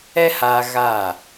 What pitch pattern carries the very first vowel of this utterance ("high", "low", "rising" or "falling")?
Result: high